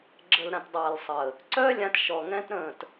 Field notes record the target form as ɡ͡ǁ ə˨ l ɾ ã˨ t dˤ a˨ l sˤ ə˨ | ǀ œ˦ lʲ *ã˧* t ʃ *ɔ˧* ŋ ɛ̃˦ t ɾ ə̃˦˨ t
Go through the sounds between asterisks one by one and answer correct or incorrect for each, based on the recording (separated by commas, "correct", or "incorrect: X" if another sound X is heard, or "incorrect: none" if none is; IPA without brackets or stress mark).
correct, incorrect: ɔ˨